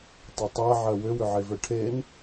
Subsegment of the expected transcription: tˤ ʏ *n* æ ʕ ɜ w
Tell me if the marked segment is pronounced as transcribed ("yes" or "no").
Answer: no